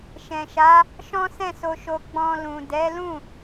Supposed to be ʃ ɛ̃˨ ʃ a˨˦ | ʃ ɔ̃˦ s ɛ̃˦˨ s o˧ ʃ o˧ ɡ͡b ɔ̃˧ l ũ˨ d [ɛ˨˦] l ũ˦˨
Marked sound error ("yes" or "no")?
no